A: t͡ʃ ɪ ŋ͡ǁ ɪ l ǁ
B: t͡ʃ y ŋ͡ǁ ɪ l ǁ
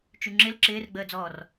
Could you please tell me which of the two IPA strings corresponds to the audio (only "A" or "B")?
B